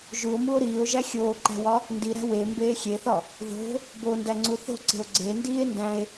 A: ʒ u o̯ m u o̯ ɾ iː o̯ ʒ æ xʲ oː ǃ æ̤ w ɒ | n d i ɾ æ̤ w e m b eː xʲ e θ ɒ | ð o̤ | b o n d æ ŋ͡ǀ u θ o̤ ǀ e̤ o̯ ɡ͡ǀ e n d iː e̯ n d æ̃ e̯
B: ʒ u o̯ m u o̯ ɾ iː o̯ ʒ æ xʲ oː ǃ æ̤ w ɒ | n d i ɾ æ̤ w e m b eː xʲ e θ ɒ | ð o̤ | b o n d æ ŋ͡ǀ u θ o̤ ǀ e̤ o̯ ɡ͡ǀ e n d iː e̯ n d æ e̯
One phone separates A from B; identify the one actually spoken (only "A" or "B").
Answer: A